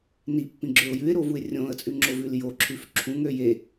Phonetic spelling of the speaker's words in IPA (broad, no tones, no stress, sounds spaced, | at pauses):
n i pː ĩ ɡ͡ǁ ø ʊ̯ j ʉ ɪ̯ ɾ o v u ɪ̯ rʲ õ ə̯ t͡sʼ ʉ ŋ͡ǁ o v ʉ l j o ǁʰ ʉ f ǁʰ ũ ŋ ø j e